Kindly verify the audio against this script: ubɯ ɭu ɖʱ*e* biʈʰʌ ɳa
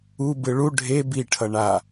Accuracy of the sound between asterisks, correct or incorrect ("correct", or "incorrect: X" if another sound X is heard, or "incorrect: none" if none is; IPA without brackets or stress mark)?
correct